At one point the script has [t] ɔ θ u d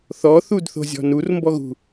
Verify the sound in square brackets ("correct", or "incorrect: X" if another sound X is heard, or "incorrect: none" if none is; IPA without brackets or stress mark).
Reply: incorrect: θ